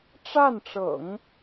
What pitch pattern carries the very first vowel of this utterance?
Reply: falling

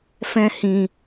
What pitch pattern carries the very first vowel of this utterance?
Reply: high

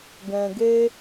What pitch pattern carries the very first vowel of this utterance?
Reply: low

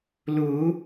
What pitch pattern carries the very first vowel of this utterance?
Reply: rising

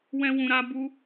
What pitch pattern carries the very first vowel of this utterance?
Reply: high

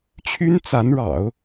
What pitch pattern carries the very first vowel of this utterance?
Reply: high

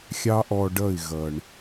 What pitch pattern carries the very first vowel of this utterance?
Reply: high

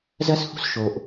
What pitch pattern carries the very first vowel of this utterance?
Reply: high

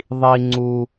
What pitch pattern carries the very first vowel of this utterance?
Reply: low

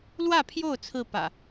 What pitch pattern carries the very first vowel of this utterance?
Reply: falling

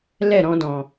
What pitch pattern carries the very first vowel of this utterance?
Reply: falling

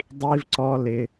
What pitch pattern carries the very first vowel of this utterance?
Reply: high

